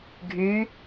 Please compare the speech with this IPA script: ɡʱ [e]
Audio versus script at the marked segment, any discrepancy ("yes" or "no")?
yes